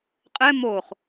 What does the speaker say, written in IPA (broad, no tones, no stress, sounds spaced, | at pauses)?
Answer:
qʼ ɛ m o χ